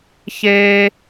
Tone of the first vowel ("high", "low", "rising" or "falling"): high